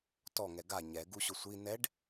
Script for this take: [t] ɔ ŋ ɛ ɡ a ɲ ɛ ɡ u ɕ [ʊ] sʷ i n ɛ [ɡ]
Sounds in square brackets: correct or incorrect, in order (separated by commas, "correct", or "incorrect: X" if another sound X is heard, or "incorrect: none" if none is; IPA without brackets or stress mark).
correct, correct, incorrect: ɖ